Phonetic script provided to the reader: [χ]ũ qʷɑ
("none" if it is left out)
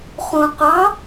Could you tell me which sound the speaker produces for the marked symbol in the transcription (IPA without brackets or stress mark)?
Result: χ